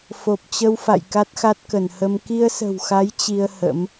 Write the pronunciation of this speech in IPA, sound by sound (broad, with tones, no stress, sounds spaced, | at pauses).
f o˨˩ p̚ t͡ɕ ə˧ w f a̰˧˨ j k a˦˥ t̚ x a˦˥ t̚ k ə˧˩ n h ə˧ m k i˧ ə̯ s ə̤˨˩ w x a˨˦ j t͡ɕ i˧ ə̯ h ə̰˧˥ m